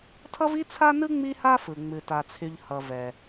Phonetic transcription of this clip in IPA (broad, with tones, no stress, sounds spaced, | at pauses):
tʰ ʌ˥ v i˥ t͡sʰ a˥ n ɯ˥ ŋ͡m i˥ h a˥ f ɯ˩ ŋ͡m ɨ˩ t a˩ t͡sʰ y˩ ʎ h ʌ˩ v ɛ˩